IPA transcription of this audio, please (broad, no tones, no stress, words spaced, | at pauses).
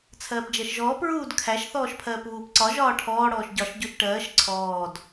t͡sʰɜːpd͡ʒɜʃʒɔːp ɹuːdkʰæʃ θɔːʃpʰɜːpβuːpǀɒ ʒɒːʈʰɔː ɽɔːʃɟɒʃ ɟuʃʈɜːʃ ǀʰɔːd